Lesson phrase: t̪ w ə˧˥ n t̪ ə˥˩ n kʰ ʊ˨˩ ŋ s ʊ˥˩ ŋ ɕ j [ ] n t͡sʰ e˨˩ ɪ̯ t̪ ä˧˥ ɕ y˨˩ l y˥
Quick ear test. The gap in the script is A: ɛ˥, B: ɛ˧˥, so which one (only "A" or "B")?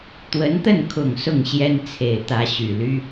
A